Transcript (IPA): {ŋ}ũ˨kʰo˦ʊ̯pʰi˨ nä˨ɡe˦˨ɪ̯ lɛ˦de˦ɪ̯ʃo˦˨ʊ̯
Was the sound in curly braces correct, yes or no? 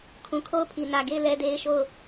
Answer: no